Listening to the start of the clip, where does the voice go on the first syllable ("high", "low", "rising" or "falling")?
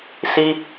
high